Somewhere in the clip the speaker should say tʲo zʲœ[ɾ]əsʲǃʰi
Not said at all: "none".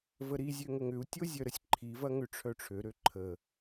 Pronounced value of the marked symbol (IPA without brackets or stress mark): ɾ